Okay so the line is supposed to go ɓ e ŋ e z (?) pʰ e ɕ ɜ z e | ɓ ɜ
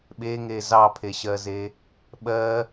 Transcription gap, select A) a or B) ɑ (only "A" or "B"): B